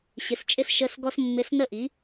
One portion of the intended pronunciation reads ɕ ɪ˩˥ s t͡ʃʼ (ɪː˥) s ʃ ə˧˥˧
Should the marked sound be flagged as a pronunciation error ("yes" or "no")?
yes